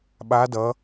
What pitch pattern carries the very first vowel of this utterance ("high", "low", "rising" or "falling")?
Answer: rising